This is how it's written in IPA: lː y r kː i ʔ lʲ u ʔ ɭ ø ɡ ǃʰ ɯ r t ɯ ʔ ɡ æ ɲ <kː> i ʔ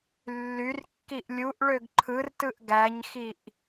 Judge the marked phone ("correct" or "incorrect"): incorrect